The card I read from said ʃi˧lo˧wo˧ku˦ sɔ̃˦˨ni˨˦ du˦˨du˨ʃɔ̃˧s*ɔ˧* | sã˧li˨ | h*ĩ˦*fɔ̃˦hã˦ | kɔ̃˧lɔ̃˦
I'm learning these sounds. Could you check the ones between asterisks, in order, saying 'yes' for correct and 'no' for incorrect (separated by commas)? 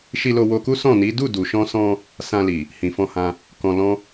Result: no, no